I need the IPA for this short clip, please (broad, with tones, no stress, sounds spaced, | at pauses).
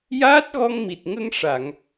j aː˦˥ t̚ ɣ ɔ˧ ŋ m i˨˩ t̚ ŋ ə˧ ŋ ʂ a˨˩˨ ŋ